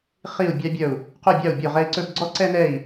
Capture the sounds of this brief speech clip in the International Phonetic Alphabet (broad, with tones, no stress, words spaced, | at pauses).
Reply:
χi˥˧u̯bʲɑ˥bʲœ˥˧u̯ | qo˥˧bʲɑ˥˧u̯ bʲo˥˧ʁɛ˥i̯ǀɵ˥b ɡ͡ǀɔ˥ǀɛ˥nɛ˥˧i̯